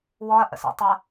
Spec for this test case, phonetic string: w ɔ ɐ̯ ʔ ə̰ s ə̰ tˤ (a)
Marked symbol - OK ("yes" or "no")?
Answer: yes